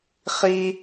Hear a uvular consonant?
yes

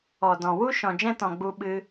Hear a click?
no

